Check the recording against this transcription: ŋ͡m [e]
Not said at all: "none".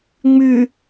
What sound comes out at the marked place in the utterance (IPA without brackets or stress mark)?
y